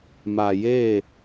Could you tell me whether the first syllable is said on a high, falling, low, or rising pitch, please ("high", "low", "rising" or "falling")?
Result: low